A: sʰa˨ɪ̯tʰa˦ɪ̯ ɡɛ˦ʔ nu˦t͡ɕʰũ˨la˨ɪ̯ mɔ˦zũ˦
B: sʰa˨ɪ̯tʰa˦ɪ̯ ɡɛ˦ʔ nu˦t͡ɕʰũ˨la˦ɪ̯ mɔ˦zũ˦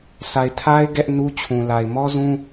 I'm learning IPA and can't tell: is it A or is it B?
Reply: A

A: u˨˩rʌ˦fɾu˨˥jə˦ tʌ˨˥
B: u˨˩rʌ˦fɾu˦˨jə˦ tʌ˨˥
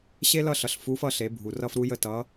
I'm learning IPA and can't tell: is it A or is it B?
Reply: A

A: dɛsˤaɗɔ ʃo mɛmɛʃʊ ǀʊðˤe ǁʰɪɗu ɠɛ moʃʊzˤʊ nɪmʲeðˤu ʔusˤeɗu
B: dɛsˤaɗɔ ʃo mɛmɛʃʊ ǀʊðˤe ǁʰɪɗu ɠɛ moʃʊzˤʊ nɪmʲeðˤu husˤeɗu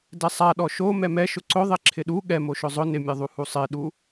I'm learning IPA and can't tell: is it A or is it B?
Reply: B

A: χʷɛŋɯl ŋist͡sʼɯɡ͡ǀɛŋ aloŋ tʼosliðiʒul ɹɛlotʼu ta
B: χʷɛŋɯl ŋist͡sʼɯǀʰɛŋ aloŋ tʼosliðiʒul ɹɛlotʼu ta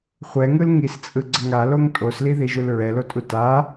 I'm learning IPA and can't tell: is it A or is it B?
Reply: A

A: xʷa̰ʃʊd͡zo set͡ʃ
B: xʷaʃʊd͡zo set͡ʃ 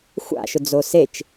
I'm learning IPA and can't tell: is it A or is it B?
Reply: A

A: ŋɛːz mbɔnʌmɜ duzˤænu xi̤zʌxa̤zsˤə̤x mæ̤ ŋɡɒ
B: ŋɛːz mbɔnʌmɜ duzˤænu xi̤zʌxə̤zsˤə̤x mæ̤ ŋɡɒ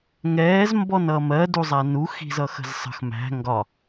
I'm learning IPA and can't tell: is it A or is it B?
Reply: B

